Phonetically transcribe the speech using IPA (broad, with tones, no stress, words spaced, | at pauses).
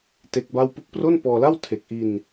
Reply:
te˦˥k̚ba˥˩w pu˦˥k̚pro˥˩npɔː˧la˥˩w tʰe˨˩k̚ʔi˧n